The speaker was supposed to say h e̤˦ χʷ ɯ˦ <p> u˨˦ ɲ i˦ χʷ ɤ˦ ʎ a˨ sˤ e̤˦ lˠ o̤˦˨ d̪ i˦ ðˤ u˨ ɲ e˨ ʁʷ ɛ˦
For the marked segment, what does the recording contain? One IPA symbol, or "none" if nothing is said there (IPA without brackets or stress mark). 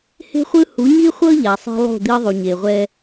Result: h